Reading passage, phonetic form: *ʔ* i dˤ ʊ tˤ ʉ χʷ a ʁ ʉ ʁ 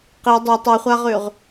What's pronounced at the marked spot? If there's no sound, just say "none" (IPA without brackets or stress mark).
q